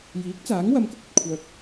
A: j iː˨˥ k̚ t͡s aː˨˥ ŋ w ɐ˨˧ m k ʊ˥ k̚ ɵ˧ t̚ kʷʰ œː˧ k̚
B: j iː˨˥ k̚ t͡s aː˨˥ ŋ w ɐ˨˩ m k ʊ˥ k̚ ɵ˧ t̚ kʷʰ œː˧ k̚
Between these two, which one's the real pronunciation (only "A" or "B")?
A